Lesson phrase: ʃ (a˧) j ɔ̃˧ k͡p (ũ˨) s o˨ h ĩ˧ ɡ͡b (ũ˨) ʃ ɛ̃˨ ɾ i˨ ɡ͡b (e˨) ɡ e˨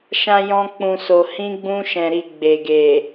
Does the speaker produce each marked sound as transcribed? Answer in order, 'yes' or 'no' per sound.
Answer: no, yes, no, yes

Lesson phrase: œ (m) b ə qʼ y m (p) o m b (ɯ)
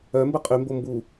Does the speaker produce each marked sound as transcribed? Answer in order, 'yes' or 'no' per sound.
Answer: yes, no, no

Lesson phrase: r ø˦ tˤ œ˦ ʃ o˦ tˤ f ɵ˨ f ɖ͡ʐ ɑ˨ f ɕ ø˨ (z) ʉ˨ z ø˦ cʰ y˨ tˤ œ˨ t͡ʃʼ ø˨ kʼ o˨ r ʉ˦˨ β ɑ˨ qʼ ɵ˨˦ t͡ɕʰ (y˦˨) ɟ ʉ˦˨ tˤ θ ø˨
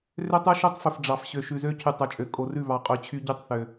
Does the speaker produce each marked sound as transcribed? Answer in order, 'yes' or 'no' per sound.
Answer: no, no

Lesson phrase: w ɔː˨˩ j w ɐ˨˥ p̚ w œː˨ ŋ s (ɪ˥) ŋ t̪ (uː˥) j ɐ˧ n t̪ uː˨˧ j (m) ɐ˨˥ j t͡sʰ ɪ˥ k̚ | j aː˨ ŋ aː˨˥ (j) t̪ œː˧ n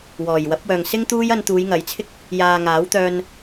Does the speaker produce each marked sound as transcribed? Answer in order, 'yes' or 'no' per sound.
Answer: yes, yes, no, no

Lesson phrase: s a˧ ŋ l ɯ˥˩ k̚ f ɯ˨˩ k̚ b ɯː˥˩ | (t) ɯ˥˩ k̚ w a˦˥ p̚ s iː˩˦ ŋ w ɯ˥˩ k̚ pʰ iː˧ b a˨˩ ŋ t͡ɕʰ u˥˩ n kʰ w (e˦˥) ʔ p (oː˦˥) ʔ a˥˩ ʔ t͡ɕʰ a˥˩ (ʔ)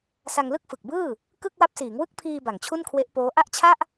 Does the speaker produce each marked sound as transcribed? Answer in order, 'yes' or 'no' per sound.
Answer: no, yes, yes, yes

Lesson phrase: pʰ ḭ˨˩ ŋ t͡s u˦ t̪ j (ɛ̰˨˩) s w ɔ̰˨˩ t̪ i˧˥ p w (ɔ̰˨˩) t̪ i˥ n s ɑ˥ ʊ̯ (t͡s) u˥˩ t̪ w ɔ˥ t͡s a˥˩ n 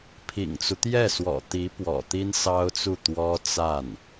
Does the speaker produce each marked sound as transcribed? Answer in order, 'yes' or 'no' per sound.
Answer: no, yes, yes

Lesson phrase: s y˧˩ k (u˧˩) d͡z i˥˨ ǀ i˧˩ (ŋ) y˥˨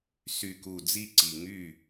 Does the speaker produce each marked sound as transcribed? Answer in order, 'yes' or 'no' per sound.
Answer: yes, yes

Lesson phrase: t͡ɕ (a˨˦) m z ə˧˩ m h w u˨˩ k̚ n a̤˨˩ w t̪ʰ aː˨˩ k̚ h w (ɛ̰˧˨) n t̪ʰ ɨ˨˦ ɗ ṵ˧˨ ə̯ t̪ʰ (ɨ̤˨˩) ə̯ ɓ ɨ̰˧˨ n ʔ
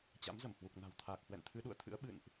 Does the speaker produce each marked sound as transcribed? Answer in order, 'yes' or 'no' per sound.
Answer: no, yes, no

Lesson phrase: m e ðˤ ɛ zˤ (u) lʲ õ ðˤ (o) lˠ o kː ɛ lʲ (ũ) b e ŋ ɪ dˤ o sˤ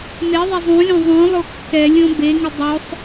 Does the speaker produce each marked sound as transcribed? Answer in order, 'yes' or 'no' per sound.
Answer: no, no, no

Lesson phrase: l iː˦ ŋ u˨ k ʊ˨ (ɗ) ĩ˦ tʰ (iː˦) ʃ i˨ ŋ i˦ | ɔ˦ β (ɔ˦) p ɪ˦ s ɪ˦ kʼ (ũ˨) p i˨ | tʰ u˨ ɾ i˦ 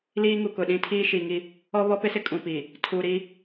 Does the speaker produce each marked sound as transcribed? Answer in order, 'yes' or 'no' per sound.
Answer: yes, yes, yes, yes

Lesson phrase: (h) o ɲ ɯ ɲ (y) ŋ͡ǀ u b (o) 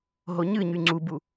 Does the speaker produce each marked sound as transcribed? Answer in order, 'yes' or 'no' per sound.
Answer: no, yes, no

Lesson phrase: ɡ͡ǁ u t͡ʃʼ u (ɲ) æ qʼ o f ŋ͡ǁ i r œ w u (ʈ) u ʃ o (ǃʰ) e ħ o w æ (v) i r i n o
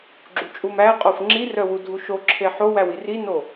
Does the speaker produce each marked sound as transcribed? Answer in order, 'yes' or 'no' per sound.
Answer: no, no, no, no

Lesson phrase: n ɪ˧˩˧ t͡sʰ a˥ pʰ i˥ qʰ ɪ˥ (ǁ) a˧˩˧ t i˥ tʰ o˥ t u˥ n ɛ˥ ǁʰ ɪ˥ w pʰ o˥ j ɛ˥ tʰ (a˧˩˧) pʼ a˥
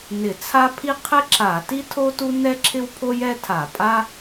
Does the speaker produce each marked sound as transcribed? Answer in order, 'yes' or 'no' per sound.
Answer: yes, yes

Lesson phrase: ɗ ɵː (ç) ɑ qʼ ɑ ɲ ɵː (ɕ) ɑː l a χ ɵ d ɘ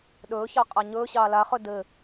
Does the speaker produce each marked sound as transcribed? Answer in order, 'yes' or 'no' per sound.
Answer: yes, yes

